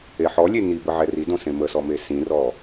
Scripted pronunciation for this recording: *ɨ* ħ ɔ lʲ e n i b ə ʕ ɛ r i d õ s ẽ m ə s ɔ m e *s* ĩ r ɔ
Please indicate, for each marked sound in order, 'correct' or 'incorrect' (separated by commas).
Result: incorrect, correct